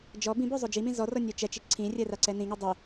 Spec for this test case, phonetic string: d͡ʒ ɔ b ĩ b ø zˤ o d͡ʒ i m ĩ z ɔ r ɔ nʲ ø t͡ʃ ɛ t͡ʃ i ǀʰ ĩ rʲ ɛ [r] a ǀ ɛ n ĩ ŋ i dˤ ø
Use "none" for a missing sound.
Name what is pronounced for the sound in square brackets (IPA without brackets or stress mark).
r